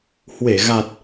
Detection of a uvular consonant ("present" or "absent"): absent